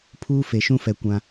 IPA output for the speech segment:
pʰ uː˦ f e˨ ʃ ũ˦ f ɛ˨ kʷ ã˦

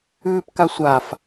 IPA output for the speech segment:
ʉː p k a sʷ a f

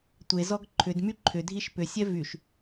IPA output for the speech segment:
tʷ e z ɔ ɡ ǃʰ ʏ d m y ǃʰ ʏ dʱ i ʃ p ʏ sʲ ɛ v y ʃ

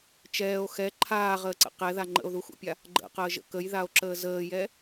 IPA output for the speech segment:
t͡ʃ ɛː o̯ x ɛ ǃʰ aː ʁ əː ǀ ə̰ q ɛ ð a ŋ͡ǃ ə̰ o̯ ð u x ṵ pʲ a | ɡ͡ǃ ə̰ q əː ʒ ə̰ k ə j ð a o̯ ǁ əː z əː j ɛ

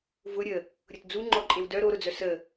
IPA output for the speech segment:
v ʊ ɾʲ ə | ɾʲ ʊ t d͡z u ŋ͡ǃ ɔ ǃʼ e w d œ ɾ o ɾ ʊ d͡z œ s ə

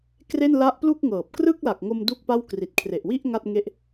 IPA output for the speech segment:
k r e˥˩ n l a˦˥ ʔ p l u˥˩ k̚ ŋ ɤː˨˩ p̚ k r ɯ˥˩ k̚ l a˨˩ k̚ ŋ o˧ m d u˥˩ k̚ p a˥˩ w k r i˨˩ t̚ kʰ r e˨˩ ʔ w i˥˩ ʔ ŋ a˥˩ t̚ ŋ e˥˩ ʔ

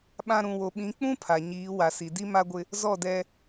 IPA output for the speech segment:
ɓ ã˦ ɾ ũ˨ w o˨ ɓ ĩ˨˦ k͡p ũ˦ pʰ a˨ ɲ iː˨˦ w a˨ s i˨ d i˦ m a˦ ɡʷ ɪ˦ | z ɔ˦˨ d ɛ˦

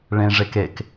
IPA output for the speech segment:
ɭ ẽ ʐ e k e k

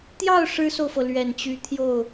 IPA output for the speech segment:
t̪ j ɑ˥˩ ʊ̯ ʂ ɻ̩˥ s o˨ ʊ̯ f ɤ˩ l ɥ ɛ˨˩ n t͡ɕ y˧˥ t̪ʰ j o˥˩ ʊ̯

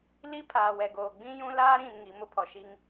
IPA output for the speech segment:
l i˦ pʰ aː˨ w ɛ˨ ɡ oː˨ ɡ͡b ĩ˦ j ũ˦ l aː˦ ɾ ĩ˨ n ŋ i˨˦ m ʊ˦ pʰ ɔ˨ ʃ i˦ ŋ

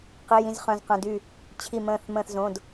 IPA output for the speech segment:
q i˩˧˩ j ĩ˩˧˩ z χ œ̃˩˧˩ z q œ̃˩˧˩ d y˧˩ | t͡ɕʰ i˧˩ m ə̃ː˧˩ θ m ə̃ː˧˩ θ z õ˩˧˩ d

